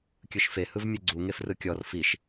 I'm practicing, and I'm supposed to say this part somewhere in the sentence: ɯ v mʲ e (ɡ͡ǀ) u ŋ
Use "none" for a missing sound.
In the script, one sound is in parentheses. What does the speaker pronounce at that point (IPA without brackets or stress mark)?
ɡ͡ǀ